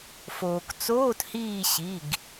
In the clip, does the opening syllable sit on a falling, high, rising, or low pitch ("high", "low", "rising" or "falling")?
low